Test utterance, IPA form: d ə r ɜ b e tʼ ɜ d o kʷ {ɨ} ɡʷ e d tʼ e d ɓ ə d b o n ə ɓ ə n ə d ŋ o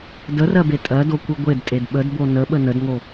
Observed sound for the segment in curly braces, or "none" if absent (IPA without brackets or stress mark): ɨ